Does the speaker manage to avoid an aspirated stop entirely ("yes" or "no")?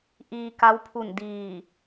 no